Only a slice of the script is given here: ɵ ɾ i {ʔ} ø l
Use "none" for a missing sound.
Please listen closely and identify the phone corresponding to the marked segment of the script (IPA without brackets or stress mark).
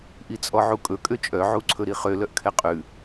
χ